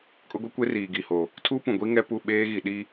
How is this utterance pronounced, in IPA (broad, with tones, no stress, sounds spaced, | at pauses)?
kʼ ʊ˦ ɡʷ i˦ kʷ e˦ r iː˨ ɡ i˨ h o˨ | tʰ uː˦ p ũ˨ ɡʷ i˦ ŋ ɛ˦ p u˦˨ ɓ eː˦ ɣ i˨ ɗ i˦